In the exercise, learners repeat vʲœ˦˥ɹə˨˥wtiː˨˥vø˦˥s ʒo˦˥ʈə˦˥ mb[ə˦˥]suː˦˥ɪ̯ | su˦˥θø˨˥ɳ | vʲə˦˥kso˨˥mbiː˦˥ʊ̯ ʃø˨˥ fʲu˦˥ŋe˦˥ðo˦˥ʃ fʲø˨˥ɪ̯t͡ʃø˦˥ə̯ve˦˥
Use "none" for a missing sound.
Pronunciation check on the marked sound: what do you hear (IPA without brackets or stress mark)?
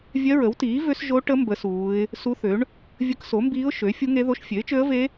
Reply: ə˦˥